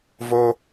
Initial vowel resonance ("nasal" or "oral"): oral